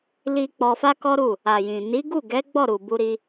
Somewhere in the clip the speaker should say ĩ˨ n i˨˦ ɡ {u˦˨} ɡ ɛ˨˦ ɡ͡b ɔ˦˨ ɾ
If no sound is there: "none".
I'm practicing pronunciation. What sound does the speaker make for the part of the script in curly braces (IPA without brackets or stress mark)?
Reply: u˦˨